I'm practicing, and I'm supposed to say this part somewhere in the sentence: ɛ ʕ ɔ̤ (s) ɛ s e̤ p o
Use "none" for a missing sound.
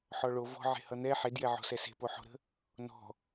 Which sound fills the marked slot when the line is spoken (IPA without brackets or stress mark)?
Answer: s